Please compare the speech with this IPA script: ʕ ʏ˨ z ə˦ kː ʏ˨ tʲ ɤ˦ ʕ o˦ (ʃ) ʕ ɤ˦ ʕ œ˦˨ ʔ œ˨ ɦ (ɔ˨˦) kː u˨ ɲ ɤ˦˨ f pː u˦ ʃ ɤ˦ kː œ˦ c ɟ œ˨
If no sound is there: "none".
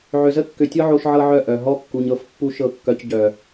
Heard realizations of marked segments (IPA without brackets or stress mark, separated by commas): ʃ, ɔ˦